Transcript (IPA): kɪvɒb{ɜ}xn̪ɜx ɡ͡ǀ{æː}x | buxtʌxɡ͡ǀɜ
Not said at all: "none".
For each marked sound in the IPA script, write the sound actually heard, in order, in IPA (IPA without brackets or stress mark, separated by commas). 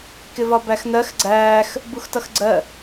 æ, æː